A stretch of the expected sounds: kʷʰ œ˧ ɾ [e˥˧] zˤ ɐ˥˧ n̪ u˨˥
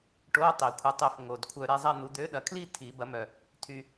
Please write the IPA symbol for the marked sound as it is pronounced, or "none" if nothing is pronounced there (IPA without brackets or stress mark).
e˥˧